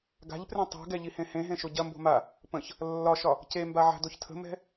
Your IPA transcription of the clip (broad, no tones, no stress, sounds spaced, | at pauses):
ɡ a̤ ʎ p r ẽ tˤ o̤ ɡ ɛ ʎ i h ẽ h ẽ ɦ ẽ ʃ o ɟ ɐ m b o̤ m a | p ə̃ ç | lː ɒ ʃ ɒ | c e m b a ʕ a̤ d o ç tʰ ə̤ m ɛ̤